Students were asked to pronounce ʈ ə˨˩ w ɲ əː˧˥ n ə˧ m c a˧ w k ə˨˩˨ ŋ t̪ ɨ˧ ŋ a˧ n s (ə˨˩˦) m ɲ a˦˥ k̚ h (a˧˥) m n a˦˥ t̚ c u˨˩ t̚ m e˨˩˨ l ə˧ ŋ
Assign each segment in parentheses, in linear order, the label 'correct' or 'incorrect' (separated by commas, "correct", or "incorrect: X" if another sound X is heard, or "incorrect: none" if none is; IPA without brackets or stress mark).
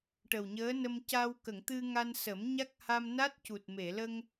correct, incorrect: a˧